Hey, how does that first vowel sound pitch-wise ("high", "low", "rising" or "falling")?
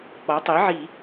rising